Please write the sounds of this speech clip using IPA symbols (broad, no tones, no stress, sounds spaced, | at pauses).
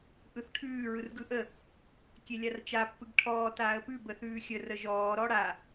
ʔ ɯ θ ʈʰ ʉː ɹ ɯ r ɡ ɯ ʔ ə | kʲ e lʲ a r t͡ʃ a pː ɯ ɡ ʈʰ ɔː t aː ə̯ p ʉ b ə θ ʉː xʲ ə r ə ʒ ɔː ɾ ɔ ɽ a